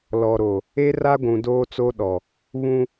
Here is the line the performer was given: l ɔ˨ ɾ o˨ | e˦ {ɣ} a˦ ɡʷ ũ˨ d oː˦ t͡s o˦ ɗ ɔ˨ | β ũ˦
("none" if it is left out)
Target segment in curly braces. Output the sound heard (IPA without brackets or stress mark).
r